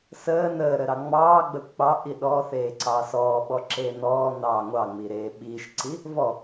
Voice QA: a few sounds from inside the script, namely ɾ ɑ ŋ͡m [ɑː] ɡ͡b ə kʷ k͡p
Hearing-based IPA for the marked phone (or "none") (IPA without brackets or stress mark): ɑː